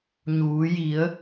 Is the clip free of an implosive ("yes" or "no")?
yes